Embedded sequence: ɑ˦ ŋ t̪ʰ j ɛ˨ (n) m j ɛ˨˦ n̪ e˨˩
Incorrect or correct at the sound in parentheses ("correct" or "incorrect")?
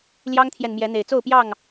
correct